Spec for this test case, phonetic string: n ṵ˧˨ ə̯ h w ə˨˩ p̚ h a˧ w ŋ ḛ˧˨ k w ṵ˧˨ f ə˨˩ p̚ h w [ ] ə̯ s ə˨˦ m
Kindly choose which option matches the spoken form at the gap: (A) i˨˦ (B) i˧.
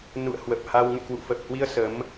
B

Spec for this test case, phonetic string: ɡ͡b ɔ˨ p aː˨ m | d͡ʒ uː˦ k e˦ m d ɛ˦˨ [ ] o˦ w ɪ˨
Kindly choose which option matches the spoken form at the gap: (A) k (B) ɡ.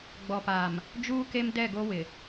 B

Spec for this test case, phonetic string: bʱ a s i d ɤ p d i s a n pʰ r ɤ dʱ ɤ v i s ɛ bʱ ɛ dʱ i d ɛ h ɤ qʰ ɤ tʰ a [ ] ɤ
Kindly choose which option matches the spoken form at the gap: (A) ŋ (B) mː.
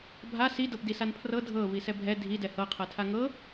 A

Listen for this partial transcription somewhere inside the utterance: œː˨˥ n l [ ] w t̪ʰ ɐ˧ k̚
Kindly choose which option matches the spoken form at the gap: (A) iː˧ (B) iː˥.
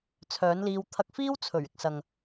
A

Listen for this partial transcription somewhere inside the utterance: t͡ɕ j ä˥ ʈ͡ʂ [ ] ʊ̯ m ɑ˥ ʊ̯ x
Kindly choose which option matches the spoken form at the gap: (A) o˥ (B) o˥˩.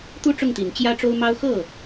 A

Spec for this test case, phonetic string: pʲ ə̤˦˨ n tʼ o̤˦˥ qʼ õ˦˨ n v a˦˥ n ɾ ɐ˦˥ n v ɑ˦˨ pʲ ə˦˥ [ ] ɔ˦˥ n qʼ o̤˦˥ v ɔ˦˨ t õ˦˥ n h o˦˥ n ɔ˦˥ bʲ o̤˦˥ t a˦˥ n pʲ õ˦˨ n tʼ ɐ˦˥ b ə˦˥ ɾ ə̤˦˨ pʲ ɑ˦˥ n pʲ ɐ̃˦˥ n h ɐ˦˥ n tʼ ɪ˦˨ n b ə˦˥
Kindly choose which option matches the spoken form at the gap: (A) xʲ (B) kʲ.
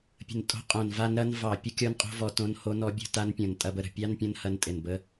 B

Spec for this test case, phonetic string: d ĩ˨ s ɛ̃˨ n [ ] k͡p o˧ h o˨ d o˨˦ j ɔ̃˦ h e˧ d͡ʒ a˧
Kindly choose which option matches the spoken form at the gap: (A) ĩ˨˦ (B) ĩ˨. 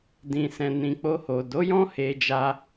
B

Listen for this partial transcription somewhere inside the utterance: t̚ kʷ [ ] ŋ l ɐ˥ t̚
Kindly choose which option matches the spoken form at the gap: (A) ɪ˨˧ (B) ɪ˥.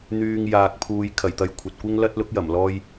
B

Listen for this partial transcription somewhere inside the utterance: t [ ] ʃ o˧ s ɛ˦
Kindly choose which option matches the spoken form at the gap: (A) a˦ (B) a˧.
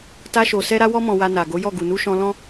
A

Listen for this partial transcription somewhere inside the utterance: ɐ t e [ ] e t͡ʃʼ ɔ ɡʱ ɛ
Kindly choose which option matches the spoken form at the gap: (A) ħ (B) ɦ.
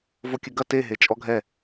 B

